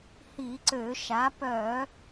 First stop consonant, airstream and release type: click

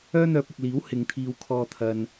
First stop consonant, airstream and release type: plain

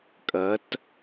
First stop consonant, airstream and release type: ejective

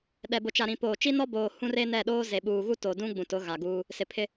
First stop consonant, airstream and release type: implosive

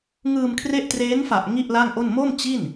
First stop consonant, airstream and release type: aspirated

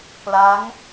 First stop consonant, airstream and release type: plain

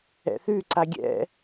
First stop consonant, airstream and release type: click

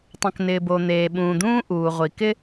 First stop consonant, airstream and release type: plain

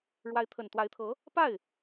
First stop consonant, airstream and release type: aspirated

